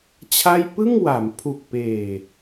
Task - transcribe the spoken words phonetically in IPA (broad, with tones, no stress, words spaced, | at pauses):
t͡ɕʰa˥˩j pɯ˥˩ŋwa˩˦mpʰu˨˩k̚ peː˨˩